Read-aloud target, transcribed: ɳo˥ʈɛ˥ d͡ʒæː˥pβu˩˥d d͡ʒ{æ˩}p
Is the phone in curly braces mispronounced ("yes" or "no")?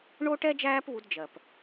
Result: yes